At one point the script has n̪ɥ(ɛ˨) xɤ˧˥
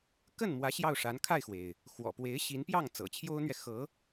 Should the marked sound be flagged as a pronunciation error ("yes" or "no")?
no